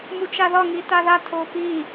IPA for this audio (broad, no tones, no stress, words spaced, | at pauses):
mut͡ʃaðɒ ŋitaða tʰopi